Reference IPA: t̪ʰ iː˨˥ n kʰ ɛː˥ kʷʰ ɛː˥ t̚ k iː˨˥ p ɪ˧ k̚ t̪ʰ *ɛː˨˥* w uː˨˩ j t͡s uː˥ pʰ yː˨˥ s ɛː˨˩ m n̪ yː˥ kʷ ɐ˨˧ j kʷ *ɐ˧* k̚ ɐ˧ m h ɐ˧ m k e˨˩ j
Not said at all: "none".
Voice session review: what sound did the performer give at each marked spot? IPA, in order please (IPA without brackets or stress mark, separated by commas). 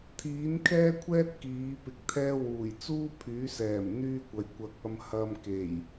ɛː˥, ɐ˧